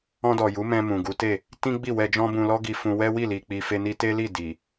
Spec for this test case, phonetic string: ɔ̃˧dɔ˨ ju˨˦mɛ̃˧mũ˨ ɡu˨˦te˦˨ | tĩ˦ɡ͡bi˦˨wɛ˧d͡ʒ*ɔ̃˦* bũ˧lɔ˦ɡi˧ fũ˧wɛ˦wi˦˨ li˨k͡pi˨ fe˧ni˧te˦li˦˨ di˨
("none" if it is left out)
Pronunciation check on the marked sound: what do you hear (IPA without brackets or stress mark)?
ɔ̃˦